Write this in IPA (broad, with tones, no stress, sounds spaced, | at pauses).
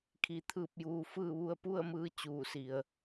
kʰ i˧ t̪ʰ ɯː˥˨ p̚ j uː˧ f ɯː˥˨ ʋ u˧ ə̯ p u˥˨ ə̯ m ɯː˧ t͡ɕ uː˧˩ s i˩ ə̯